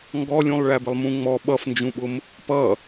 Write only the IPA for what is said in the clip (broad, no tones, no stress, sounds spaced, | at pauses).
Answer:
ŋ ɡ ɔ lʲ ũ lˠ ɭ æ b ɪ lˠ m ũ ŋ͡m ɔ ɓ ʌ f n d͡ʒ ũ ɓ ʊ m | p ʌ